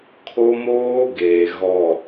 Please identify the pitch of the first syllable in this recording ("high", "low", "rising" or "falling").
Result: high